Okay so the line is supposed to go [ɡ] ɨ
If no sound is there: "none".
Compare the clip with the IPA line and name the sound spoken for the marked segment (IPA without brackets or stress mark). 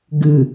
ɡ